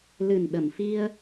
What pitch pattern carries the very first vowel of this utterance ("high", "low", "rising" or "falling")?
low